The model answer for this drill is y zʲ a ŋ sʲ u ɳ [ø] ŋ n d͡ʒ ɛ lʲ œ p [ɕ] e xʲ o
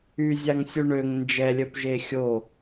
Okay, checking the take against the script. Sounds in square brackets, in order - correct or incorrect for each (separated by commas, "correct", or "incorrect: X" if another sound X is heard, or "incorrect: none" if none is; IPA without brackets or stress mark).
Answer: correct, incorrect: ʒ